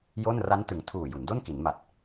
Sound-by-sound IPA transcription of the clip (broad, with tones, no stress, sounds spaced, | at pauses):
j o˥˩ n r a˦˥ n t ɯ˩˦ ŋ tʰ uː˨˩ j u˩˦ n d o˥˩ n k i˩˦ n m a˨˩ t̚